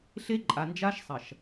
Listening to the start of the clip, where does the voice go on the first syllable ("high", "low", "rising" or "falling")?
high